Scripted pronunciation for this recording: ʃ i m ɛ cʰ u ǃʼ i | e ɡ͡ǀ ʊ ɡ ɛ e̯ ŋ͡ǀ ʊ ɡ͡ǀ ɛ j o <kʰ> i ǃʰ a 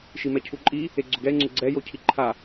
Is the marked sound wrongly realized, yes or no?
yes